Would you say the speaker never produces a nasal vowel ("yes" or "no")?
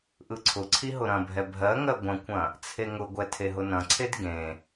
no